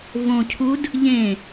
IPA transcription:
v õ cʰ u d | ʎ ẽ

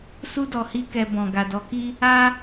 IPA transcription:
s u˦ d ɔ˧ h i˦ k ɛ˧ b ɔ̃˨ ɡ a˨ d ɔ˨˦ k i˦ | a˦

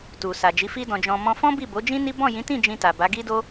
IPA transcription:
t u˨ s a˨ d͡ʒ i˨˦ f i˦ d ɔ̃˧ d͡ʒ ɔ̃˧ m ɔ̃˧ f ɔ̃˦ b i˦˨ b o˨˦ d͡ʒ ĩ˦ n i˦ b ɔ̃˦˨ j ĩ˨˦ t ĩ˦˨ d͡ʒ ĩ˧ t a˨ b a˨˦ ɡ i˦ d o˦

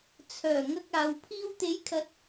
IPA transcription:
t͡sʰ œː˨˩ ŋ ɐ˧ k̚ aː˨˧ w pʰ iː˧ w t̪ e˨˥ j kʰ ɐ˨˥ t̚

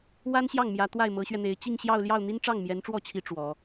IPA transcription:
w a˥ n ɕ j ɑ˥˩ ŋ m j ä˧˥ t̪ w a˥˩ ɪ̯ m ɤ˧˥ ɕ ɥ ɛ˧ n̪ e˧˥ ɪ̯ t͡ɕ i˥˧ ŋ ɕ j ɑ˥˧ ʊ̯ l j ɑ˥˩ ʊ̯ n̪ i˥ n ʈ͡ʂ ɑ˥˩ ŋ m j ɛ˧˥ n ʈ͡ʂ w ɔ˥˩ t͡ɕʰ i˧˥ ʈ͡ʂ w ɔ˧˥

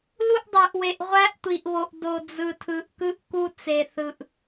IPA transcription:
l u˥ ʔ dˤ ø˧ ʔ w e˧ ʔ ʁʷ æ˥ ʔ tʷ i˧ ʔ β o˧ ʔ d o˧ d͡z ɯ˧ tʰ ɯ˧ ʔ k ɯ˥ ʔ k u˥ t͡s e˧ θ ɯ˧ ʔ

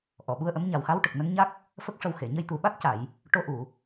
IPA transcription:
ʔ ɔ˨˩˨ ɓ u˧ ə̯ ʔ ə˧˥ m ɲ a˨˩ w x a˧˥ w ʈ ə˨˩ k̚ n ə˧˥ ŋ ɲ a˦˥ k̚ | f ə˦˥ k̚ ʂ ə˧ w x e˨˩˨ ɲ ə˧ j t̪ u˨˩ ɓ a˦˥ t̚ c a˨˩˨ j | ʈ o˧ ʔ u˨˩˨

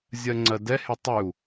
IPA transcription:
zʲ ɜ ŋ͡ǀ ɜ d ɛ h e tˤ y u̯

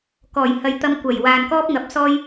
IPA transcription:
k ɔː˨˩ j h ɐ˨ j t̪ ɐ˧ m kʷ ɐ˨˩ j w aː˨ n k ɔː˥ p̚ ŋ ɐ˨˥ p̚ s ɔː˥ j

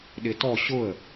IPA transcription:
ɗ ɪ t ɔ ɕ ʊ ə̯

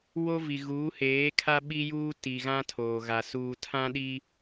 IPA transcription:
w o˦ v i˨ ɣ uː˨˦ h eː˨˦ kʰ a˦ ɓ i˦ j uː˦ t i˨ ɣ ã˦ tʰ oː˨ ɣ a˨ s uː˨ tʰ ã˦ ɗ i˦

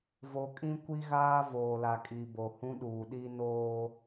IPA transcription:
v o˨ kʼ ĩ˦ kʷ i˦ ɣ aː˦ v oː˨ l a˨ kʼ i˨ b o˨ h ũ˦ ɗ uː˨ ɗ i˦ n oː˦

